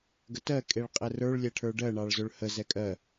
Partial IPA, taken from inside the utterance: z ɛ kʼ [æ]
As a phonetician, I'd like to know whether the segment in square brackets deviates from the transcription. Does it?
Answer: yes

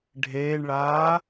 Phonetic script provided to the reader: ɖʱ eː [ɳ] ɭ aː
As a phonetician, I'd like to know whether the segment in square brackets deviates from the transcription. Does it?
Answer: no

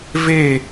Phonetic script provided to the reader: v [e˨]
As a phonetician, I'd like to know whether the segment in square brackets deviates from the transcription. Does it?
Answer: yes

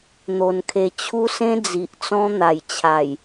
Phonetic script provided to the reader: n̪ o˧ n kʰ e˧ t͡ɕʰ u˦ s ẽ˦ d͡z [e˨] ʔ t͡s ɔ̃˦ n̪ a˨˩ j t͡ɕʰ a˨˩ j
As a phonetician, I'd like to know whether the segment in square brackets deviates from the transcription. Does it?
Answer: yes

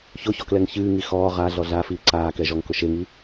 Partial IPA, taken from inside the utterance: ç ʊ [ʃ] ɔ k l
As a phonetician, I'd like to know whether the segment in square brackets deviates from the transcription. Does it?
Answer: yes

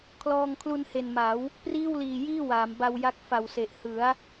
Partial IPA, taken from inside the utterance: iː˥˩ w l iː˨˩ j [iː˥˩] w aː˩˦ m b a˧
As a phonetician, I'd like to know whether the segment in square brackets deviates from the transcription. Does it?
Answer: no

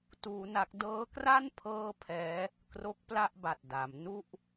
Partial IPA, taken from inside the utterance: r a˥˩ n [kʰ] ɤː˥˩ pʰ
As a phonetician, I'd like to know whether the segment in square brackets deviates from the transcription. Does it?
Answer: yes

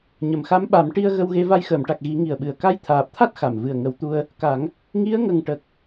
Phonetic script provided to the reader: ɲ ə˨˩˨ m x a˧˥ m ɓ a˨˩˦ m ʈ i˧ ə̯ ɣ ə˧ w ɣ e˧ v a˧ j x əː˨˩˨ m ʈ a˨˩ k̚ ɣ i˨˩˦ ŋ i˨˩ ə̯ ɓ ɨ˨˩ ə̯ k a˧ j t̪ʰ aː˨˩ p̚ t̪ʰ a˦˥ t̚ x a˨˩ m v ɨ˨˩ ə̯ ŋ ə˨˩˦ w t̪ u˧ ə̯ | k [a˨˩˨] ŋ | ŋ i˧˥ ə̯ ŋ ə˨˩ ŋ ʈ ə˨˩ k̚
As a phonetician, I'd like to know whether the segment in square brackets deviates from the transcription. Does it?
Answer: yes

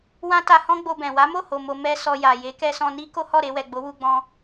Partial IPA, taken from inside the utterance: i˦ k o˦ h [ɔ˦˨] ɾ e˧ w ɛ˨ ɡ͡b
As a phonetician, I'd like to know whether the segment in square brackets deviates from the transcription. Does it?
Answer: no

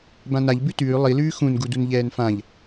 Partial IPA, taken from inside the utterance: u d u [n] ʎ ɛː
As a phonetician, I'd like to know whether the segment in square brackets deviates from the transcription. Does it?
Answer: no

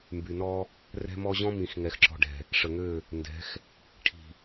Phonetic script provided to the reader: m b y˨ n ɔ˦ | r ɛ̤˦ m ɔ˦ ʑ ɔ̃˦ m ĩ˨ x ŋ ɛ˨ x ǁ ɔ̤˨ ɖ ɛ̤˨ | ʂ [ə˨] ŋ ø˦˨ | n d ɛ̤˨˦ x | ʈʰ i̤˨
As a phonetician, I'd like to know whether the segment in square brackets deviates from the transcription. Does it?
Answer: no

